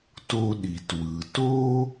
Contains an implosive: yes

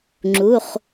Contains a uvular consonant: yes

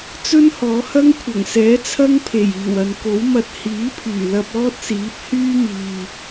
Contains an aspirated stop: yes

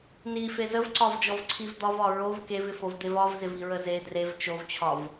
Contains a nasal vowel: no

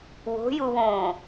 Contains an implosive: no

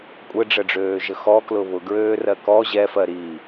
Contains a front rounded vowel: yes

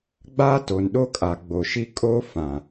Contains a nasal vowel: yes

